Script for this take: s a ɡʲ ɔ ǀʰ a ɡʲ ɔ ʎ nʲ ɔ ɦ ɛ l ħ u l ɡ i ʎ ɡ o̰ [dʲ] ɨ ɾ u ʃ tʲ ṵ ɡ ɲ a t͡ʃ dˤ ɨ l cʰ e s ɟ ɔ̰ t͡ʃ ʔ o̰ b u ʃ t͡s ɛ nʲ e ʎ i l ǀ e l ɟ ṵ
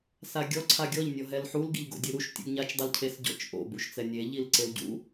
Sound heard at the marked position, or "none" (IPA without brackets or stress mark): dʲ